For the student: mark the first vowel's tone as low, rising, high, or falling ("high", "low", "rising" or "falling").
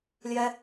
high